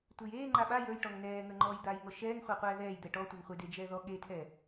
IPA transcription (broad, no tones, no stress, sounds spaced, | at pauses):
tʷ e j eː ŋ͡ǃ a ɓ a j ə˞ j ʈ ɔ ŋ n ɛː ŋ ə˞ ŋ͡ǃ ɔː j d̪ aː j ŋ ɔ ʃ ɛː ŋ χʷ a qʷ ɛː ð ɛː j d̪ ɛ ʈ ɔ tʷ e ŋ χʷ e d e d͡ʒ ɛː ð ɔ ɠ e tʰ ɛ